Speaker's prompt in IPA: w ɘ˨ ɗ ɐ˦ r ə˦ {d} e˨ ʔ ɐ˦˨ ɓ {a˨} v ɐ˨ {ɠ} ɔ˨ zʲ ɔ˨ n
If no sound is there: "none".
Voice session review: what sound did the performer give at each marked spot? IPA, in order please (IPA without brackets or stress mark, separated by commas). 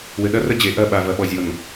d͡ʑ, a˨, ɓ